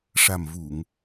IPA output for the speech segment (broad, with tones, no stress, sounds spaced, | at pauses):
ʂ a˨˩ m v u˨˩˨ ŋ